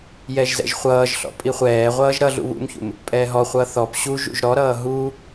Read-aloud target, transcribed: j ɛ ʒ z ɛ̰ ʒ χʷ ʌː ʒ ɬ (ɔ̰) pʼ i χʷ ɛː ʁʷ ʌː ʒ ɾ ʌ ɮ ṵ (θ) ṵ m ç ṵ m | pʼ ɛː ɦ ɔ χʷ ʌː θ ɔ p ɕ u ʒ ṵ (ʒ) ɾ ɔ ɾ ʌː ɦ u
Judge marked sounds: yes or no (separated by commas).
yes, no, yes